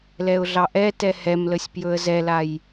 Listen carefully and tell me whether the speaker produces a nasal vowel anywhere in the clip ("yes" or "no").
no